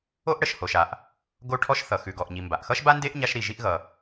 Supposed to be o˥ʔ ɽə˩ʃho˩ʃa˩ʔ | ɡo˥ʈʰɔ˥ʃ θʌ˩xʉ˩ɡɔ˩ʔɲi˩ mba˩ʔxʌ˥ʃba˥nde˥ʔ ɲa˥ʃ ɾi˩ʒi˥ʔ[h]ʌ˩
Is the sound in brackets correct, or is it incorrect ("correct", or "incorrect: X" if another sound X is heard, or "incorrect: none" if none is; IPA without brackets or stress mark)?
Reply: incorrect: ɣ